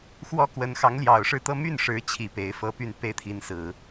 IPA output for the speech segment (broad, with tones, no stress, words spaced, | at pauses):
xwɔ˥kwə˧˥n xɑ˧˥ŋljɑ˨˩ʊ̯ʂɻ̩˥˧t̪ɤ˥˧ my˥˩nʂɻ̩˧˥t͡ɕʰi˨˩ pe˧˥ɪ̯fɤ˥py˥˧n pe˥˩ɪ̯t̪ʰi˧˥nsɹ̩˨˩˦